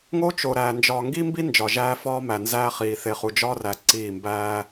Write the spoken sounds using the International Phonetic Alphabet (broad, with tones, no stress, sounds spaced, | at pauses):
ŋ o˦ t͡ʃ o˨ ɾ æː˨ n d͡ʒ ɒː˨ ŋ ɡ i˦ m b i˦ n d͡ʒ ɒ˨ ʒ æː˦ f ɒː˦ m æ˨ n z æː˦ χ iː˨ θ e˨ χ u˨ d͡ʒ ɒː˦ r æ˨ ǀ iː˦˨ m b æː˦